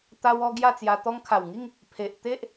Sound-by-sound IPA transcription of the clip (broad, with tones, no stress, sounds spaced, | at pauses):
t̪ a˧ w ɔ˧ ɡ j a˥˧ t͡s j a˧ t̪ ɔ˧ ŋ kʰ a˨˩ w ŋ i˥˧ ŋ | pʰ e˨ ʔ t̪ e˦ ʔ